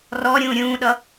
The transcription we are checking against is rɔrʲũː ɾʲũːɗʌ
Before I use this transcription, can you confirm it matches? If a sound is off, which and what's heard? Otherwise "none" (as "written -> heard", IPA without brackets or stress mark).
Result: rʲ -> ɾʲ